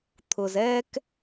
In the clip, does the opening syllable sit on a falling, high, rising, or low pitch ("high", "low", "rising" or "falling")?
low